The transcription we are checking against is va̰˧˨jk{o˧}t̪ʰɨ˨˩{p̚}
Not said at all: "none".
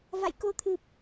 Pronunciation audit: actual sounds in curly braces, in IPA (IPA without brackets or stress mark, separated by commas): o˧, p̚